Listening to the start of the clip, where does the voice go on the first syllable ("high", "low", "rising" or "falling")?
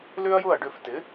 high